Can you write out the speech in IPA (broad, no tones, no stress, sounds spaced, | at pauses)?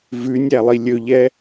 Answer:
v ʉ nʲ æ lˠ i lʲ ɵ ʎ ɛ